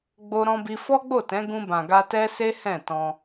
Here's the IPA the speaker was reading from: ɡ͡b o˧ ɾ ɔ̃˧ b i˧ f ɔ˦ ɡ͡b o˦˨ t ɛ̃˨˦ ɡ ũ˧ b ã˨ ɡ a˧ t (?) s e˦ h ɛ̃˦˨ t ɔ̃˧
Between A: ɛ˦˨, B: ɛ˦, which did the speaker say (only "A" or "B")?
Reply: B